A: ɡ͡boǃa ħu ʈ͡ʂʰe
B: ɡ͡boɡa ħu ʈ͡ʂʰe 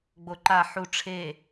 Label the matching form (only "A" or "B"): A